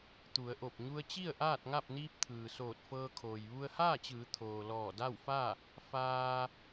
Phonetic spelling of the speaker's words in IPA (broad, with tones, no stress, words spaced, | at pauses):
t̪u˩˧ə̯ʔo˧˩p̚ ɲu˧ə̯t͡ɕi˥˨ə̯ ʔaː˥˨t̚ŋa˥˨p̚niː˧˥p̚ t̪ʰɯː˩ soː˧˩t̚fɤː˧kʰoː˩j ʋu˧ə̯haː˥˨t͡ɕɯː˩˧ t̪ʰoː˩lɔː˧˩da˥˨wfa˥˨ | faː˧